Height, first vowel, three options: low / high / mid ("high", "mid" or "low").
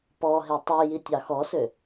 mid